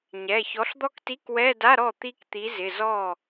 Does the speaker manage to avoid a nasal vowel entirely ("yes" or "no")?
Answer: yes